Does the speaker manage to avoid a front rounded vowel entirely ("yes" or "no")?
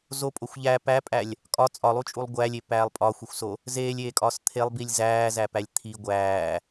yes